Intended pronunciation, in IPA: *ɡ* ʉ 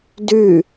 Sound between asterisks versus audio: incorrect: d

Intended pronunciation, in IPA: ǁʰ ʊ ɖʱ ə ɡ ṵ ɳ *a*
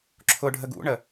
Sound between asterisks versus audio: incorrect: ə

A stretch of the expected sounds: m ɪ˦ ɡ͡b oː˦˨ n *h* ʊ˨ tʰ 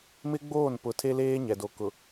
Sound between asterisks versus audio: incorrect: p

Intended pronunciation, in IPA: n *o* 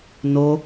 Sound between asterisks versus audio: correct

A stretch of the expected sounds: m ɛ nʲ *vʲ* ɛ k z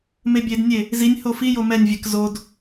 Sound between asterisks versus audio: correct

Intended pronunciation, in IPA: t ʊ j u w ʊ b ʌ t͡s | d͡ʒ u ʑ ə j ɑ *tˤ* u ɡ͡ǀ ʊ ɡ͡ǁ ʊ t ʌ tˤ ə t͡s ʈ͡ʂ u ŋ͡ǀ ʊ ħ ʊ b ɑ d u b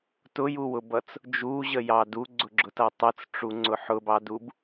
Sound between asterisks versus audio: incorrect: d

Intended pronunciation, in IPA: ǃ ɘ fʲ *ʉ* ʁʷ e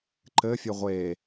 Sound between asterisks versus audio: incorrect: ɘ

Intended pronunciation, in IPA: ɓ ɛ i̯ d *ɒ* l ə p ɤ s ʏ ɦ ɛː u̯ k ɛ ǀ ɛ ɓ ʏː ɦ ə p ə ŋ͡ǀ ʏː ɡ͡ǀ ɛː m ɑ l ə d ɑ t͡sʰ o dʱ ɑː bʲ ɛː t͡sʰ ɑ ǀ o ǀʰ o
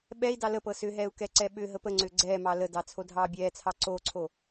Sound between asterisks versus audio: incorrect: ɑ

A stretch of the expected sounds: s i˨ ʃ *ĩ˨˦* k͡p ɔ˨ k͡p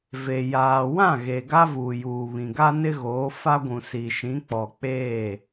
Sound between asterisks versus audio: correct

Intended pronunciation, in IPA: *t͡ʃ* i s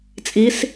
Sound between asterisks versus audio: incorrect: t͡sʼ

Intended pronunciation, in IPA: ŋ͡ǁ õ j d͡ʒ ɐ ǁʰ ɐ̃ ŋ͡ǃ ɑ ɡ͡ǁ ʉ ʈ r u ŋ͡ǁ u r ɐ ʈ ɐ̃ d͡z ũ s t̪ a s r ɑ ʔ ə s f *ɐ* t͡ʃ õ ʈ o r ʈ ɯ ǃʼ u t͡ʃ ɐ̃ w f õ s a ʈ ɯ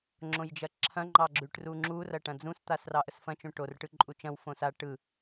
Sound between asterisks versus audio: incorrect: ɐ̃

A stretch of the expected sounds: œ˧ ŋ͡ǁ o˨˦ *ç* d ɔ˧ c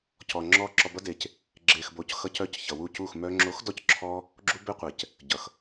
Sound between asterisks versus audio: incorrect: x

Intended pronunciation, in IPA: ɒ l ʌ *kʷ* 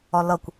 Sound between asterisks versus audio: correct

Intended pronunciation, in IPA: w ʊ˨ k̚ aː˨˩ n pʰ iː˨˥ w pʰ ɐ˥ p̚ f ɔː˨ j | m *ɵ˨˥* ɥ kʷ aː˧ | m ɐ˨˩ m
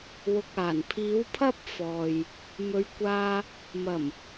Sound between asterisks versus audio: incorrect: ɵ˨˧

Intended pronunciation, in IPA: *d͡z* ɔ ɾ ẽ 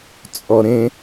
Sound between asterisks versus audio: incorrect: t͡sʼ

